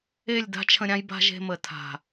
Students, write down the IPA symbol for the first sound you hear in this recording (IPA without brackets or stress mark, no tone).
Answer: e